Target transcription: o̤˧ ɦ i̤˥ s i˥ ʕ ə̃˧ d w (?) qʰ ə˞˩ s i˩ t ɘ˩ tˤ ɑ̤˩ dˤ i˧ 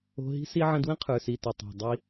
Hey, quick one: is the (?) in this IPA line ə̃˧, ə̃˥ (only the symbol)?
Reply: ə̃˥